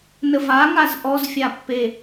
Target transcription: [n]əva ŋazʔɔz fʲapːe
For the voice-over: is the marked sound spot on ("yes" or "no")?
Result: yes